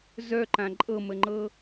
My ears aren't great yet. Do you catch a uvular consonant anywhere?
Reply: no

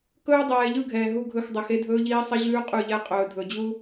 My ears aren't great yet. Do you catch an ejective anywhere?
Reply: yes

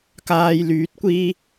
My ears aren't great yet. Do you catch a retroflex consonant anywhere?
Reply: no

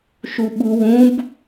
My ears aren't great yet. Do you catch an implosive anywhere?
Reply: yes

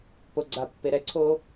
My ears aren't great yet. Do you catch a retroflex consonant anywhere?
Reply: no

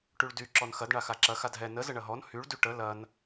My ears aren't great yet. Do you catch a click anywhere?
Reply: yes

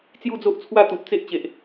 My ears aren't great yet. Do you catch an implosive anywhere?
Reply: no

